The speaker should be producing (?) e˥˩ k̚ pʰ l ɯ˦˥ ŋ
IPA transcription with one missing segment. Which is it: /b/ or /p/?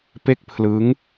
p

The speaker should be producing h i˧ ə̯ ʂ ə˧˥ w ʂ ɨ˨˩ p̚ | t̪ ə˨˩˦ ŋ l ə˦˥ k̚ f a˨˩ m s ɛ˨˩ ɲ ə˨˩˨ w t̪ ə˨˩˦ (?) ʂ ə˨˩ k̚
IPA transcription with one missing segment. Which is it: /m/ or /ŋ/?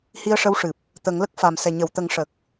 ŋ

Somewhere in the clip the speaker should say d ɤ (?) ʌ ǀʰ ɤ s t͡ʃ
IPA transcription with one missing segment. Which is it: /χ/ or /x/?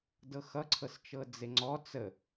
x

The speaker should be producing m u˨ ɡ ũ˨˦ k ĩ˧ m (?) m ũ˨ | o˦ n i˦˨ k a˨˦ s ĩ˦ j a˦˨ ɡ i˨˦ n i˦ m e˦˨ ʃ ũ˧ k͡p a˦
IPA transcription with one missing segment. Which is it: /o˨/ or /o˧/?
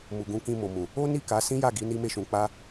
o˨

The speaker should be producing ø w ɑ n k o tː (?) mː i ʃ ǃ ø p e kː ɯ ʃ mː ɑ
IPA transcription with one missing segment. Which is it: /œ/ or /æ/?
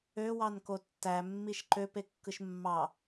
æ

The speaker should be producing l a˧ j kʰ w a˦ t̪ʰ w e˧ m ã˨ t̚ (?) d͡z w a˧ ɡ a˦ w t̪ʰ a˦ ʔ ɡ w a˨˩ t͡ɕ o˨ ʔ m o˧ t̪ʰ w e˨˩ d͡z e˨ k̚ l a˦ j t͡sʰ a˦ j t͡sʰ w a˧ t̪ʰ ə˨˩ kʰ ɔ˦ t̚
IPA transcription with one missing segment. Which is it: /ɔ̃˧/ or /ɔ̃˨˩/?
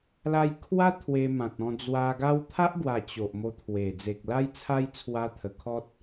ɔ̃˧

